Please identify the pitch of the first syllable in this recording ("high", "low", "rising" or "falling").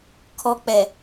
low